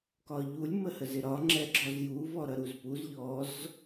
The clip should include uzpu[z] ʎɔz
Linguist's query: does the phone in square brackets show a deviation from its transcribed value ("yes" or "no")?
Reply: no